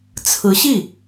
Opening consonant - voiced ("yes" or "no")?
no